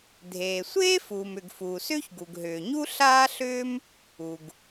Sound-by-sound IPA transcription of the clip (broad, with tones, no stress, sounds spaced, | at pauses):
dʱ eː˩ sʷ eː˥ f uː˩ m ʏ˩ ɡ f uː˩ s ʏː˥ ç ɡ u˩ ɡ ɦ ʏː˩ ɲ u˥ ɬ aː˥ ɬ ʏː˥ m | u˩ ɡ